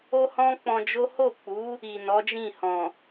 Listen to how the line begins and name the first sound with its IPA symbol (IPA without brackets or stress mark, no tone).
o